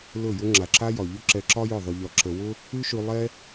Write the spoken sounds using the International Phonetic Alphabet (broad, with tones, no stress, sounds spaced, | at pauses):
l ɵ˦˨ j ʊ˦ ŋ͡ǁ a˨ ǁ a˧ j ɒ˨ ʎ ɵ˦ ǁ ɛ˧ ǁ ɒ˦ j ʊ˦˨ ðˤ ɵ˧ ʎ ɒ˧ ǁ ə˧ w ʊ˦ | ʉ˦ ʃ ʉ˧ lˠ ɛ˦